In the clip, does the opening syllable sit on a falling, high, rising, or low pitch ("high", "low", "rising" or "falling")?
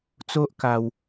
high